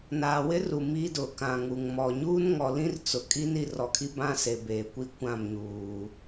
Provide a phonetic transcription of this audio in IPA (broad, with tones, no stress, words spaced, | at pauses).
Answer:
naː˨wɪ˦ ru˨ mi˦dʊ˨ kã˨ŋu˨ŋmɔ˨ ɲuː˦nŋɔ˨lĩ˦r t͡sʊ˨kʼi˦n i˨rɔ˨kʰi˦ bã˦se˨ beː˨kʷi˦ kʷã˦˨mɲuː˨